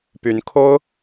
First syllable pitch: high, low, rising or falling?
rising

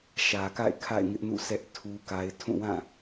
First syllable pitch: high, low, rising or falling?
low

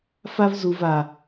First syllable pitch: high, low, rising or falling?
high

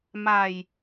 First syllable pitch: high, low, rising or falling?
low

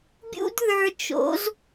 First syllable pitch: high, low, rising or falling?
high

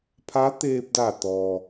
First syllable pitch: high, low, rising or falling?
rising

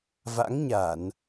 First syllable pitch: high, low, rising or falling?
rising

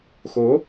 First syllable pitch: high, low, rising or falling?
rising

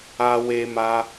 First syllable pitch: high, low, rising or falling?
high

